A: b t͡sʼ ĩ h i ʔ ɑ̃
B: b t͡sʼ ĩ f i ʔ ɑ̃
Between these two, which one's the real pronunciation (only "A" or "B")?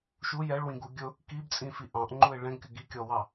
B